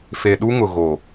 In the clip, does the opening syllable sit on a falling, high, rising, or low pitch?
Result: low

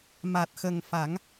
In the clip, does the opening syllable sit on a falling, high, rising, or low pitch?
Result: low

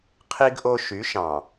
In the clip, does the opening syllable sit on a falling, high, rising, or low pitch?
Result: high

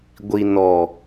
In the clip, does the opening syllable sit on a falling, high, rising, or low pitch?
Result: low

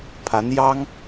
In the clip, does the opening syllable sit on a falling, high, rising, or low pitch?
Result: rising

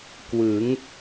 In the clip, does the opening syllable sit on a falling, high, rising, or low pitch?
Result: rising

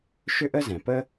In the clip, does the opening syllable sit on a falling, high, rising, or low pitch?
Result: high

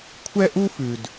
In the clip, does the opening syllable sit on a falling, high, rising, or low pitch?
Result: high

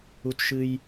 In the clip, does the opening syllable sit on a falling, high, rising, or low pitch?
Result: high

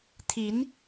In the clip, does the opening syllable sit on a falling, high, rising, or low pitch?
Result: rising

